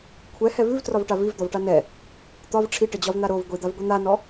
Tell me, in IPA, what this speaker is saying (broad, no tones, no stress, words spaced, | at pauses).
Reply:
kʷʰɛhɛ vʉvtrɒvʈa vivd̪ɒvʈa nɛ | t̪ɒv ʈ͡ʂʰiʈəd͡ʑɒvn̪a ɾov ɡʷid̪avɡʷi n̪anɔ